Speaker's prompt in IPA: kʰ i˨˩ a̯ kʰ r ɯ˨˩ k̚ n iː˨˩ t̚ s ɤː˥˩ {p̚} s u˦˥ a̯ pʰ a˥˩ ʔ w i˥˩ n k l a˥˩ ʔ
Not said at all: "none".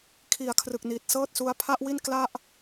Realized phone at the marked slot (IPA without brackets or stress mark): t̚